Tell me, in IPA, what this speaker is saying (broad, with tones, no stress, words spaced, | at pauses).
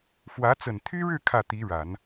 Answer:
fwä˧˥ t͡sə˨˩nt̪ʰy˥ɻɻ̩˥˧ kʰä˥˩ t̪i˧˥ɻa˨˩˦n